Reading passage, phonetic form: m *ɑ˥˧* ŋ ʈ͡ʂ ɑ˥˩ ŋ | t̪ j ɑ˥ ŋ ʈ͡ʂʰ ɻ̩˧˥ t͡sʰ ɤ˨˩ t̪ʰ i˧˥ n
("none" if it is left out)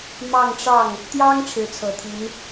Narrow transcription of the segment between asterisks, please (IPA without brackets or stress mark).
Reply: ɑ˥˧